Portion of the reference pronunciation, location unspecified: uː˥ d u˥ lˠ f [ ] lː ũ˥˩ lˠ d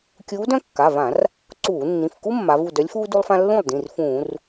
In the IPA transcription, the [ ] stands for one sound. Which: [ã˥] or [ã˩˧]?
ã˥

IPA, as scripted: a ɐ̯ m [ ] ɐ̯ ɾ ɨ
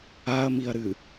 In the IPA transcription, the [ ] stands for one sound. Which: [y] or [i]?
i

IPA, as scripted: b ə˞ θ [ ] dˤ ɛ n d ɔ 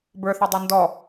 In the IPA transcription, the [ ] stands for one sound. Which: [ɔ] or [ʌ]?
ʌ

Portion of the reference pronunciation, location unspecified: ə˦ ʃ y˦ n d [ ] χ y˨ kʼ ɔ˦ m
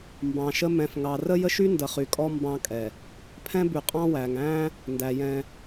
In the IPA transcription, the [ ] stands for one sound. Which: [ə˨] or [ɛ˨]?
ə˨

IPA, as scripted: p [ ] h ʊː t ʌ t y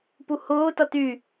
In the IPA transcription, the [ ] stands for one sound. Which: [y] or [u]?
u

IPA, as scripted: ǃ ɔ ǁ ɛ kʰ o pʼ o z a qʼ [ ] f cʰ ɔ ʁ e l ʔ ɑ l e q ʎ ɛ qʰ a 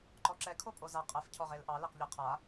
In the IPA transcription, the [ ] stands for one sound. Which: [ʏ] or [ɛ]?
ɛ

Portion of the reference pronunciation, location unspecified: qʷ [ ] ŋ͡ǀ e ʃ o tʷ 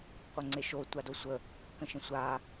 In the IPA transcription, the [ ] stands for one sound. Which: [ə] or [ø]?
ə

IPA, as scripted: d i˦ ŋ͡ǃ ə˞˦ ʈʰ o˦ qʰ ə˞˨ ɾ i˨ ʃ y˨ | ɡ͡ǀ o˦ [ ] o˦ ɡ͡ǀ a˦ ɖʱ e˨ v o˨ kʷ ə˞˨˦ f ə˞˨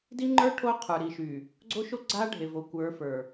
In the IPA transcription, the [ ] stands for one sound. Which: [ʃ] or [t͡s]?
ʃ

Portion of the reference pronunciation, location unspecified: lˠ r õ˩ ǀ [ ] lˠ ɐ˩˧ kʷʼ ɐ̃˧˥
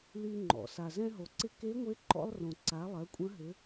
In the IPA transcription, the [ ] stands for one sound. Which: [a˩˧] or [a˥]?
a˩˧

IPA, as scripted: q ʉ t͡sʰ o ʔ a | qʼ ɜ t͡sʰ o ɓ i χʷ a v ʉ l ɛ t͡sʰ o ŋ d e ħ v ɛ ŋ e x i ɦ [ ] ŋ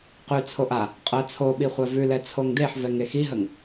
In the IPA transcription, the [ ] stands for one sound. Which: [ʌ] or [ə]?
ə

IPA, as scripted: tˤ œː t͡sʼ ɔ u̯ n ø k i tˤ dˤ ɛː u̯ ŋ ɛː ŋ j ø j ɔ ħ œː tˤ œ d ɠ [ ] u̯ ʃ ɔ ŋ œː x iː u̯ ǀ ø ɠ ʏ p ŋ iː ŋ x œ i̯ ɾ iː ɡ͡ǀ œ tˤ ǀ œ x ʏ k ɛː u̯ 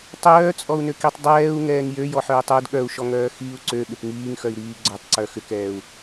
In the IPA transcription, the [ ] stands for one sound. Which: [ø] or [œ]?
œ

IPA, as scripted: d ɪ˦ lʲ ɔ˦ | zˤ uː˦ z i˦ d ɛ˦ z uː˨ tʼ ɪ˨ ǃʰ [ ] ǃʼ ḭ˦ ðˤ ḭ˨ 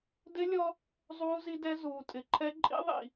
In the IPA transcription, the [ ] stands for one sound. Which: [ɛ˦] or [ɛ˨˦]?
ɛ˦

